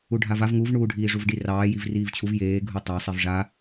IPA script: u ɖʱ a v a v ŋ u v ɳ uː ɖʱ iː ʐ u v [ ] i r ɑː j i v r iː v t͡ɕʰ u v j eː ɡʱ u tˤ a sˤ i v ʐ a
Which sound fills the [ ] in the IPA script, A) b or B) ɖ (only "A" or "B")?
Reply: B